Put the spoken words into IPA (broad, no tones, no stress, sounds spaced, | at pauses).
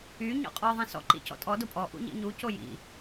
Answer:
y ɲ ɔ̰ qʼ ɔ ðˤ ĩ s ɔ̰ ǃ ḭ c ɔ̰ tʼ ɔ d o pʼ ɔ ʔ ṵ ɲ ḭ ɲ u c o j ḭ